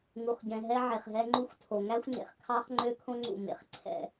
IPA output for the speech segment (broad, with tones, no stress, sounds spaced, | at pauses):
ŋ u˨ χ ɟ ɛ̃˨ ɦ ɛ˦ ʕ e˨ χ ɦ ɛ˦ ŋ͡ǃ u˦ xʷ tʰ o˨ ŋ æ˦ xʷ ŋ͡ǀ ḛ˨ χ kʰ ɑ˦ χ ŋ͡ǃ ø˦ kʰ õ˦ ŋ͡ǀ ṵ˦˨ m ḛ˨˦ χ ǀʰ ɛ̰˨